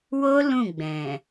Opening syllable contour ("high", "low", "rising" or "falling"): high